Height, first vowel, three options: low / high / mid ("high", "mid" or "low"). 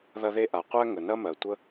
low